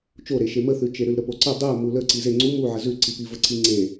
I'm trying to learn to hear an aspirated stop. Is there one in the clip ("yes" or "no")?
no